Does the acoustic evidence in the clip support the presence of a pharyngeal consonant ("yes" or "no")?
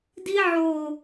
yes